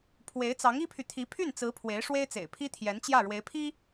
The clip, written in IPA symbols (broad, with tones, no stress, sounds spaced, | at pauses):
pʰ w e˧˥ ɪ̯ t͡s ɑ˧˥ ŋ i˥ pʰ y˨ t̪ʰ i˧˥ pʰ y˥˩ n t͡s ɹ̩˧˥ pʰ w e˧˥ ɪ̯ ʂ w e˥ ɪ̯ t͡s ḛ˨˩ ɪ̯ pʰ i˥ t̪ʰ j ɛ˧˥ n t͡ɕ j ä˥˩ ɻ w e˧˥ ɪ̯ pʰ i˥